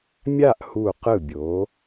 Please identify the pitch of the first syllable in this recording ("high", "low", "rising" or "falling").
falling